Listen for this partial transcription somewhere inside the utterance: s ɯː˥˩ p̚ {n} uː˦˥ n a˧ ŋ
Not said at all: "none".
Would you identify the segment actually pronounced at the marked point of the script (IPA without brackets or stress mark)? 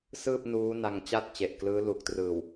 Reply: n